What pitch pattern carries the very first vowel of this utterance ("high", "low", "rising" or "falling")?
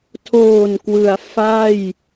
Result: low